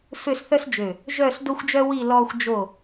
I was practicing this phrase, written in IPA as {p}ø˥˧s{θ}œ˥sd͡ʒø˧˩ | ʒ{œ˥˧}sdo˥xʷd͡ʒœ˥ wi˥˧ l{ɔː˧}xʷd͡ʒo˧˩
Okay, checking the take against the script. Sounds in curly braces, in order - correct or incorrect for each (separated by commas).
incorrect, correct, correct, correct